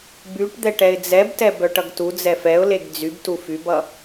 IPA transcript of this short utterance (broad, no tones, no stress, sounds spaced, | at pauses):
b y ʈ d̪ ɛ ʈ ɛ ɪ̯ d͡z ɛ b t ɛ b œ ʈ ʌ ɡ t u d͡z ɛ f ɛ ʊ̯ l e ɡ d͡z y b t u f y b ʌ